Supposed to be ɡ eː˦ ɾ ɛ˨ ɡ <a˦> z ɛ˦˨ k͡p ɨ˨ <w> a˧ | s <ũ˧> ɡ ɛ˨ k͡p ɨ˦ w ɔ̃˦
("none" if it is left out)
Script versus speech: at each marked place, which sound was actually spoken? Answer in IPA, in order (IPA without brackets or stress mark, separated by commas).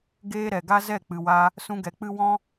a˦, w, ũ˧